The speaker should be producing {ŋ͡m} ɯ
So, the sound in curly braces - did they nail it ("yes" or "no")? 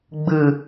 no